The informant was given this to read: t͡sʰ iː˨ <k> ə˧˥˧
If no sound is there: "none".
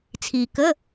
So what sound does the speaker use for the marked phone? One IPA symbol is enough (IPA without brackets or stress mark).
k